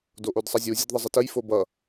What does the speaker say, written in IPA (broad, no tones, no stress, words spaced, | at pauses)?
doʔodsˤʌzʲu zʲədðˤəzˤətəj fobʌ